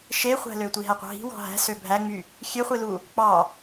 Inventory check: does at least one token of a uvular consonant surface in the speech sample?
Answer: yes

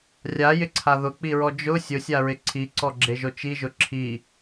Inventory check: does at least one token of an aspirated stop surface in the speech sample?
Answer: yes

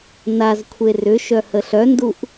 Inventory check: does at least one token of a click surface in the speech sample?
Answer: no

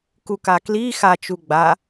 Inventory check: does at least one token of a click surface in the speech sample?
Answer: no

